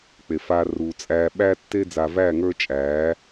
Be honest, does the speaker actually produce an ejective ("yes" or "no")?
yes